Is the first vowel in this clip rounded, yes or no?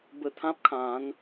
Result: no